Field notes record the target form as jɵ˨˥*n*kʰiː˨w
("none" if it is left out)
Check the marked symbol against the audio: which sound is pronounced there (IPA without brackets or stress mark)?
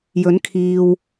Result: n